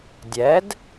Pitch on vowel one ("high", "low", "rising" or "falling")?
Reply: rising